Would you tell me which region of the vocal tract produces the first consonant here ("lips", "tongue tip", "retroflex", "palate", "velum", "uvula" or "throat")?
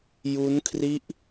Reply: palate